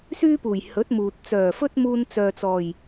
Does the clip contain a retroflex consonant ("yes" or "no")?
no